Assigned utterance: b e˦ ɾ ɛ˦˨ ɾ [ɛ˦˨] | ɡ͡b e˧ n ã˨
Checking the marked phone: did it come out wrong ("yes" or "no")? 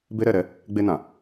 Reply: yes